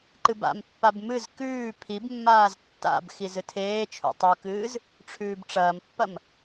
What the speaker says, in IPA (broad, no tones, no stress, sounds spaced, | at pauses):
ǃ ɨ b a̰ m pː a b m ɨ z k ʉː pʰ i b mː aː z tː a̰ b x i z ɨ tʰ eː t͡ʃʰ ṵ tˤ u k ɨː z | ʈ͡ʂʰ ʉː b ʈ͡ʂ ɐː m pː ɐ m